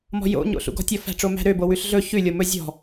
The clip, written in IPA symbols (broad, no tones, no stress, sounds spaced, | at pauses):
m ɔ̤ j o̰ ɲ o̰ ɬ ṵ ɡ ɔ̤ tʲ ɔ f æ̤ ʈ͡ʂ o m æ̤ ɾ ø b o w ʉ ɬ ɮ ɵ ç ʉ lʲ o m ɵ zʲ ɔ̤